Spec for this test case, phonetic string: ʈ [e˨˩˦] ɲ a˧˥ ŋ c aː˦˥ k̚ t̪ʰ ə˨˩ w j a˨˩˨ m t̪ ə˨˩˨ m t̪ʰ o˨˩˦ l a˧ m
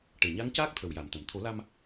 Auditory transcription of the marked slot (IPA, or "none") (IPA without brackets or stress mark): e˨˩